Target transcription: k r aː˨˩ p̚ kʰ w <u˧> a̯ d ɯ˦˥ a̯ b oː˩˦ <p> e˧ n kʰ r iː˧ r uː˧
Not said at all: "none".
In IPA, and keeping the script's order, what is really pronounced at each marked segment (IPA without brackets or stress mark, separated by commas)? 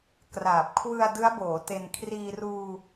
ɯ˧, t